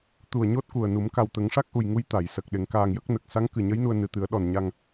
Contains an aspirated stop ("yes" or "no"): no